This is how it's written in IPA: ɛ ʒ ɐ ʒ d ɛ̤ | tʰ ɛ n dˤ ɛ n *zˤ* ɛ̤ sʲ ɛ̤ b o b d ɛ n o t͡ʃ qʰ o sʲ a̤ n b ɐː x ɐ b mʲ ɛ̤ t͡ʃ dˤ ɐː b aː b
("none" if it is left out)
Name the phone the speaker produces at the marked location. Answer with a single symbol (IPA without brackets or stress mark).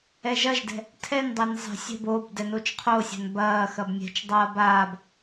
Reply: zˤ